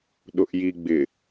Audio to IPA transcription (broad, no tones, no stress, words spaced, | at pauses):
ɗʊʔjiɡ͡bɪ